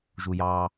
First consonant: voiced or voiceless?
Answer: voiced